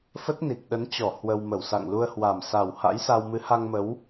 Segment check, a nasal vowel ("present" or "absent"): absent